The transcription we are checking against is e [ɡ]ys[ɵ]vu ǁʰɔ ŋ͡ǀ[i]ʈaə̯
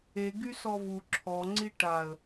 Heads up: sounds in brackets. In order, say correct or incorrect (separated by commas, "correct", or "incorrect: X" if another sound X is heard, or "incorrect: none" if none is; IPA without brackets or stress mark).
correct, incorrect: ɔ, correct